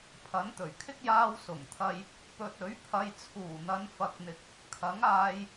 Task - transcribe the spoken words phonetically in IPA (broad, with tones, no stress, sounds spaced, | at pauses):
pʰ ɐ˨˥ n t̪ ɵ˨˩ ɥ kʰ ɪ˥ k̚ j aː˧ w s ʊ˨˩ ŋ t̪ʰ ɐ˧ j | p ɵ˨ t̚ ɵ˨˥ ɥ pʰ ɐ˨ j t͡sʰ uː˨˩ n̪ ɐ˨˧ n f ɐ˧ k̚ n̪ ɪ˧ k̚ | kʰ ɐ˨˥ ŋ aː˧ j